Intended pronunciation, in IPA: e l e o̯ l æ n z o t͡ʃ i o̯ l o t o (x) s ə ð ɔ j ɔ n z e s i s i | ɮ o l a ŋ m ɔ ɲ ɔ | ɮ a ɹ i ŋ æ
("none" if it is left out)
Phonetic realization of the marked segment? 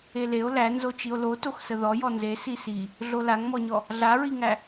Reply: x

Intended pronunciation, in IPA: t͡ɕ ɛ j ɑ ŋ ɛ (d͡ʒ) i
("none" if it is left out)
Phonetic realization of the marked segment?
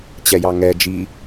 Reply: d͡ʒ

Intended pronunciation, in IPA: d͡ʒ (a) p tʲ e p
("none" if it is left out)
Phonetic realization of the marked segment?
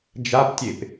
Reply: a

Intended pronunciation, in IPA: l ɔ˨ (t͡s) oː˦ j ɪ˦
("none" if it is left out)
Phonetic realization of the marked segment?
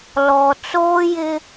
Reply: t͡s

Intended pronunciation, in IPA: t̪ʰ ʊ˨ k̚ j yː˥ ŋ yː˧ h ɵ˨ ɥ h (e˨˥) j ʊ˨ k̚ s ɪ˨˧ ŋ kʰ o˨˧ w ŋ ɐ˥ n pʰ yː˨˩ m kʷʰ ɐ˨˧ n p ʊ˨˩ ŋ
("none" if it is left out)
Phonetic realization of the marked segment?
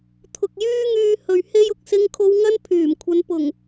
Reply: e˧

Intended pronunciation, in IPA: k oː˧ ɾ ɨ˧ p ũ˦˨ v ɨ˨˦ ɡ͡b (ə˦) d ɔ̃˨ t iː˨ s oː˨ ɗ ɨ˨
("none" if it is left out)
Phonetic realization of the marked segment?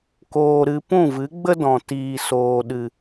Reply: ə˦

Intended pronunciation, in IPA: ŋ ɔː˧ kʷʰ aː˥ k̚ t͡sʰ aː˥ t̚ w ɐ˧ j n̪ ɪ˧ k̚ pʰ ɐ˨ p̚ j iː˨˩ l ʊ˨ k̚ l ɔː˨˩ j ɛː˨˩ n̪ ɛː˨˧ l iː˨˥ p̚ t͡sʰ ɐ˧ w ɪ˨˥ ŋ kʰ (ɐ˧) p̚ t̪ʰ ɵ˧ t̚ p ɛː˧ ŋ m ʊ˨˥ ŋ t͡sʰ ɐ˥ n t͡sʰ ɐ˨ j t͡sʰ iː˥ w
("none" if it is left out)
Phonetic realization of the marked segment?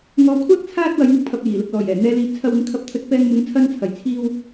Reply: ɐ˧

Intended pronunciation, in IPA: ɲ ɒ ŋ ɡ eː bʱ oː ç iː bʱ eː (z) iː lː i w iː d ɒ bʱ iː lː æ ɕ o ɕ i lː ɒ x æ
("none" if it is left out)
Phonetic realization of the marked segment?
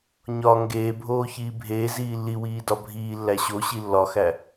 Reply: z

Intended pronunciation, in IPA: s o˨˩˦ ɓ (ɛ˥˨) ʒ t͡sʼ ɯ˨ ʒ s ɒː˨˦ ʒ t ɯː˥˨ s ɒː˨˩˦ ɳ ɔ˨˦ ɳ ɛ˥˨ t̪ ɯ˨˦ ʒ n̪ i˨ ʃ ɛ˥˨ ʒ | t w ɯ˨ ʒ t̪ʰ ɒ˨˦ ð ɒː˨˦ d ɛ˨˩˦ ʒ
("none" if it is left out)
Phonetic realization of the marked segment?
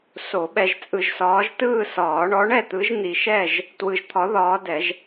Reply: ɛ˨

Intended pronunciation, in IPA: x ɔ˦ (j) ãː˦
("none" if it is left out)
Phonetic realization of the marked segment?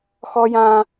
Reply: j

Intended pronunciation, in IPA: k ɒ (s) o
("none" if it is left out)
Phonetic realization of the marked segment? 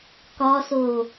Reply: s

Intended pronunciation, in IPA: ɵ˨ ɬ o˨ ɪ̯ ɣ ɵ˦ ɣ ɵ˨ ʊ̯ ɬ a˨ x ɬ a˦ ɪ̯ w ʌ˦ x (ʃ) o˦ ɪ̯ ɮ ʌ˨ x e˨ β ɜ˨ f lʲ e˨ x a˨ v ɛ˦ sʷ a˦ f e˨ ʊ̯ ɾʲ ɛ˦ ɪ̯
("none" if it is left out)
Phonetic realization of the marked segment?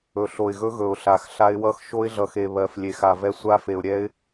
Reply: ʃ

